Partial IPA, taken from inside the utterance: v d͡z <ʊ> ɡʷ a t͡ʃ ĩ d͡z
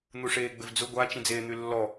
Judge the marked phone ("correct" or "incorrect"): correct